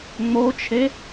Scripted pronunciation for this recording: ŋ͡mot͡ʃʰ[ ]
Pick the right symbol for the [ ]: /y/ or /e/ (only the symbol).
e